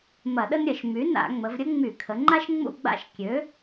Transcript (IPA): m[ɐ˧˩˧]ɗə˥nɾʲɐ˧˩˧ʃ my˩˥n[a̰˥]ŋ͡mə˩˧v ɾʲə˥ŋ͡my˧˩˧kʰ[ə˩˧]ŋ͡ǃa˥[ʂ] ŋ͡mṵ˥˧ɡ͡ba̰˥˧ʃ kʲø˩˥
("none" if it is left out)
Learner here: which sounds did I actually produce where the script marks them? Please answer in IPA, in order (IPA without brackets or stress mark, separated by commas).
ɐ˧˩˧, a̰˧˩˧, ə˩˧, ʃ